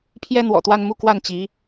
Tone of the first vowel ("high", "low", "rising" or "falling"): high